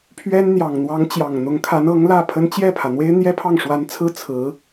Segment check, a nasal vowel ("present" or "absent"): absent